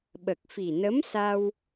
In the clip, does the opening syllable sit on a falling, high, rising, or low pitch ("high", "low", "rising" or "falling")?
low